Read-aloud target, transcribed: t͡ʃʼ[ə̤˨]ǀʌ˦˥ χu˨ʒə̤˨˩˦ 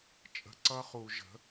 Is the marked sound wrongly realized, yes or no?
no